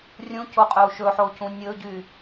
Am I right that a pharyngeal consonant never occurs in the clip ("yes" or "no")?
no